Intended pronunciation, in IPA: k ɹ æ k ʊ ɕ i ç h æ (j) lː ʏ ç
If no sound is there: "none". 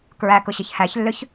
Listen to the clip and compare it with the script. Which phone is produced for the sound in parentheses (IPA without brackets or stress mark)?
ç